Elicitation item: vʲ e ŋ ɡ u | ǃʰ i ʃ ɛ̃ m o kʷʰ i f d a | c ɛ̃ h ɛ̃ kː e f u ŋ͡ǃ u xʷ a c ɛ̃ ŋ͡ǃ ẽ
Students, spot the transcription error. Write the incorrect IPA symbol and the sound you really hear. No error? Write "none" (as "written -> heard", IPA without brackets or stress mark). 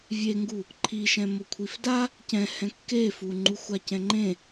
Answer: none